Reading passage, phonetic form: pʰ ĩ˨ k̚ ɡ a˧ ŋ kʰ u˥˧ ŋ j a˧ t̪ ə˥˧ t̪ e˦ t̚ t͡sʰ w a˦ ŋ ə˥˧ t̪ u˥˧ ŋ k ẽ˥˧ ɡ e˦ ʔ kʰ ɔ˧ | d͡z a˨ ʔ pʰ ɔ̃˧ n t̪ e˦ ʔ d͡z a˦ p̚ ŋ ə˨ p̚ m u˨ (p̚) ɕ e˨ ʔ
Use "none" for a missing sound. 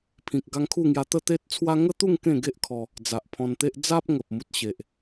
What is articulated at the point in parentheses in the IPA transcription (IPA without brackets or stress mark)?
t̚